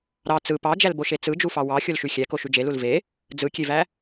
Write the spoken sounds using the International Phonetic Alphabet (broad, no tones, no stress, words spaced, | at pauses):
ɾɑ t͡sɯ pɑd͡ʒælboʃe t͡sɯd͡ʒufɑ wɑ xʲolʃyxʲæko ʃyd͡ʒelul ve | d͡zɯkʲevæ